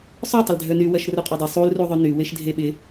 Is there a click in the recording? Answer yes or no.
no